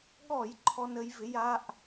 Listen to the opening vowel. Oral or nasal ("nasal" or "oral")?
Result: oral